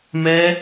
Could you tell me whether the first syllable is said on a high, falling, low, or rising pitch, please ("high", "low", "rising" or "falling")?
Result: high